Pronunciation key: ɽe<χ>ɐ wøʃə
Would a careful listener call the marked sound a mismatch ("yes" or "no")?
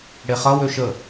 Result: no